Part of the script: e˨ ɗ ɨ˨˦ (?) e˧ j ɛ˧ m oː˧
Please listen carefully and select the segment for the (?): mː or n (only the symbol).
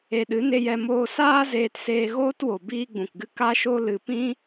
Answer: n